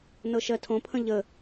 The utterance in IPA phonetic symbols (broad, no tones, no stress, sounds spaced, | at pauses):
n ɤ ʃ ɜ tʰ õ pʰ ə̃ ʎ ə